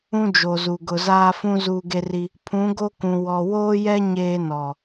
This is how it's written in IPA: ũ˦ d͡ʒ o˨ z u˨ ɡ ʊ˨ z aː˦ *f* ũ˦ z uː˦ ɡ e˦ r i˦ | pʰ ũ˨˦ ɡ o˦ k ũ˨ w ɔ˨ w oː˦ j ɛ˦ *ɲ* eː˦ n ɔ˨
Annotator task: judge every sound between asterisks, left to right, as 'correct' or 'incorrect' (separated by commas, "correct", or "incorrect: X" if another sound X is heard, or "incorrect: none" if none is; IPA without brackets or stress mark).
correct, correct